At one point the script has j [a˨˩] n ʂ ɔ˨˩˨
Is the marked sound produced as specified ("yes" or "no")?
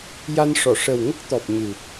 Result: no